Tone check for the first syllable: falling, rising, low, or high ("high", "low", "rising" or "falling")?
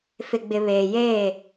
low